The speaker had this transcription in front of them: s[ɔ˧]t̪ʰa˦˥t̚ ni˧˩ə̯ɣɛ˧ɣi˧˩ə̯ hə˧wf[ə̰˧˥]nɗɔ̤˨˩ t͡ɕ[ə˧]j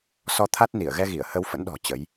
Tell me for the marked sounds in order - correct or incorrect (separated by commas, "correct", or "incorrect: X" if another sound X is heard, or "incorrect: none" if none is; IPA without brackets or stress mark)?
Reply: correct, correct, incorrect: ə˨˦